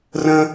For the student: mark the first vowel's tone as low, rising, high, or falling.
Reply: high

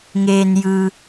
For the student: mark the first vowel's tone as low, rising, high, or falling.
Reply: low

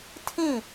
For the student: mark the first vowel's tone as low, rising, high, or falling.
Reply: falling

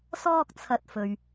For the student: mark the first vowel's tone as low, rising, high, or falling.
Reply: high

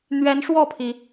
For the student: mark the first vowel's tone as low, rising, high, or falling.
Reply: rising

